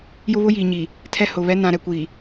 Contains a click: no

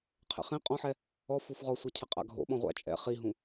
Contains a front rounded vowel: no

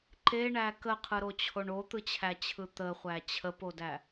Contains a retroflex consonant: yes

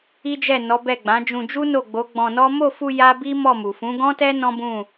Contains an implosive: no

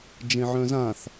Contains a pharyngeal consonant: yes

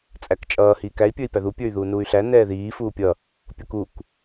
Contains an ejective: yes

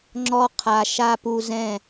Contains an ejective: no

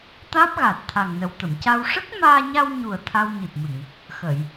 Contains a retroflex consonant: yes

